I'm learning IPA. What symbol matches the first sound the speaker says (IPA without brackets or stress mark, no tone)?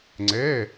ŋ͡ǀ